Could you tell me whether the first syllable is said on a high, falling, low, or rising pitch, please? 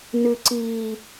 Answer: low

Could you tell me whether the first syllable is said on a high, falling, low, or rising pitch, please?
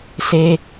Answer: high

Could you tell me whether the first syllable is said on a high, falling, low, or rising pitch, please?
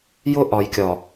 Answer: high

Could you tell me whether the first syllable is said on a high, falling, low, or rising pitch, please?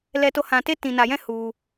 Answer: high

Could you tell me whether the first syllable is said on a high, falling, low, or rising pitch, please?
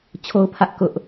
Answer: high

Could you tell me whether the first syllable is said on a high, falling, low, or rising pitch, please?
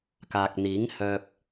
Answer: low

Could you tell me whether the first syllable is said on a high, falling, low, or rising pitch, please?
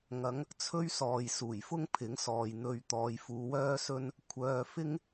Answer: rising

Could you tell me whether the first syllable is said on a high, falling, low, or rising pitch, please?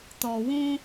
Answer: low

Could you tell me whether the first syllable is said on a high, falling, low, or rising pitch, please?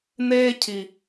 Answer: high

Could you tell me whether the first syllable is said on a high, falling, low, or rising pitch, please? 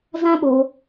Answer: high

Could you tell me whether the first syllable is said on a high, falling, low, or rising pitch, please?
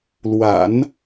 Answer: low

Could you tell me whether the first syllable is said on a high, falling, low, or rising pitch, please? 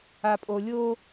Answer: high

